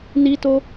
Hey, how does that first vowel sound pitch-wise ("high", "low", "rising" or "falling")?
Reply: high